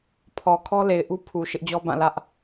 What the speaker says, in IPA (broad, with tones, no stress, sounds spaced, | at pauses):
pʰ ɔ˨ kʰ ɔ˦ l e˨ ɪ̯ ʔ u˦ pʰ u˨ ʃ ɪ˦ ʔ d͡ʑ ɔ˦ b ã˦˨ l ä˦ ʔ